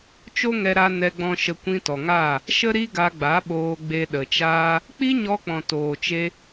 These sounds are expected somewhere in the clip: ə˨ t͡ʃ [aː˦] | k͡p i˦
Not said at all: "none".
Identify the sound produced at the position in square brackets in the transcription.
aː˦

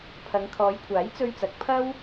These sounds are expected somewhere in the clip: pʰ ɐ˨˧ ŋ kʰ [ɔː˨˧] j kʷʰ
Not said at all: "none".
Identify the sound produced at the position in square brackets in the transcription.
ɔː˨˧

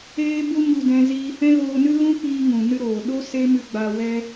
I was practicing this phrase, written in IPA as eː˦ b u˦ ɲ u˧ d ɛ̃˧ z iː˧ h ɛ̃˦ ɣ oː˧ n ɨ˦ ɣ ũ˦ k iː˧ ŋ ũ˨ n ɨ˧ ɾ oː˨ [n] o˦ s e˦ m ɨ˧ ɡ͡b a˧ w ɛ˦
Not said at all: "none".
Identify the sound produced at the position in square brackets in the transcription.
ɗ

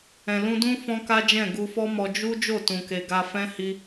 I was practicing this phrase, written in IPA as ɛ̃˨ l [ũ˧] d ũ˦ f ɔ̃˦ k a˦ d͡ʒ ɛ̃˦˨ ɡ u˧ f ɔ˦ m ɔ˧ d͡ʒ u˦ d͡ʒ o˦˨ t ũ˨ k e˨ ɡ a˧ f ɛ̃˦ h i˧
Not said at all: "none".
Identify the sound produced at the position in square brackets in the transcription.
ũ˧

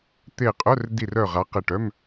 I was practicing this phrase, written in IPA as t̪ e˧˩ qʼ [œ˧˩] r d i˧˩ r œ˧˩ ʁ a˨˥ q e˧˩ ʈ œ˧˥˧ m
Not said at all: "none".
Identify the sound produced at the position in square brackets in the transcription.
œ˧˥˧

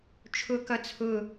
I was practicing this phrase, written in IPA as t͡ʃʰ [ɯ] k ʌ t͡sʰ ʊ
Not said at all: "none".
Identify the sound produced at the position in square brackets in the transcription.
ʊ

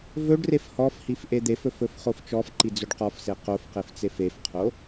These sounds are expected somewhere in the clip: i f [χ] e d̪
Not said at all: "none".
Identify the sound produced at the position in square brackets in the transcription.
ʔ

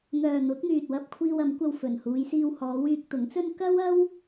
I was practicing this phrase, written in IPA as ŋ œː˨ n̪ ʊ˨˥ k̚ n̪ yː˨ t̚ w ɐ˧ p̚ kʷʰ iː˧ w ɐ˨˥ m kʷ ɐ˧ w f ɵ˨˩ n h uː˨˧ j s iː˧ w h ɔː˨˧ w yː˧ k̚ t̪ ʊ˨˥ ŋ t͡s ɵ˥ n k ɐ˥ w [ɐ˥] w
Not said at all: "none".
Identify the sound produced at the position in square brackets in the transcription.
ɐ˥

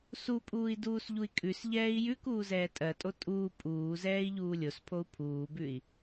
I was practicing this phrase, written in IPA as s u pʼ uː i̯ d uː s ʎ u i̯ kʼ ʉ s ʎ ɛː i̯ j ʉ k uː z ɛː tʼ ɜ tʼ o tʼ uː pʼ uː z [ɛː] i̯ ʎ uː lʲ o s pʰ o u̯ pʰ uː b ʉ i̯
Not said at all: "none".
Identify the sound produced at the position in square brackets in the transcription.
ɛː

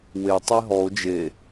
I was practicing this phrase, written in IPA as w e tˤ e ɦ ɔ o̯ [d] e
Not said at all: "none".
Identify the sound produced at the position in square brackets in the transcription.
d͡ʒ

